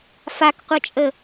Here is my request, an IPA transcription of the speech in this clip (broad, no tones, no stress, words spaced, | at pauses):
fakqʷʌt͡ʃʼə